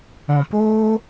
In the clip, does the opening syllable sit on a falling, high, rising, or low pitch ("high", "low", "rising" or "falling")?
low